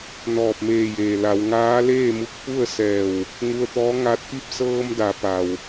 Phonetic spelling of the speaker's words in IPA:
n ɔː˧˩ p̚ m eː˧˩ j eː˩ l a˩˧ w ŋ aː˧˥ l eː˥˨ m u˧ k̚ p u˥˨ ə̯ s ɛː˧˩ w | ŋ u˧ ə̯ t̪ ɔː˧˥ ŋ a˧ t̚ p i˥˨ p̚ s ɤː˧ m d a˩˧ p a˩ w

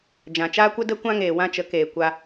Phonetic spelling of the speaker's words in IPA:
d͡ʒ ã˨ t͡ʃ aː˦ kʷ ə˦ d ə˦ kʷ ã˦ ŋ eː˨ w ã˦ t͡ʃ ə˨˦ k eː˨ kʷ a˧

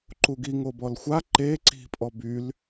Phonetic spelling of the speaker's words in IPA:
ǃ u ɡ i ŋ o b ɔ l xʷ a ǃ e ǀ i̤ pʼ ɔ b y l

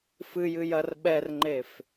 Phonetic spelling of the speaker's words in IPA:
f ɨ j ɨ j ɐ r ɓ ɛ r ŋ͡ǃ e f

